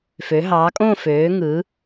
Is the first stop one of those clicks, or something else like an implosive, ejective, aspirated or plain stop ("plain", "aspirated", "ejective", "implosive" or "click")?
ejective